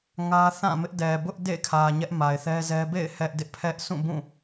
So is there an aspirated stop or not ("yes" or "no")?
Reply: yes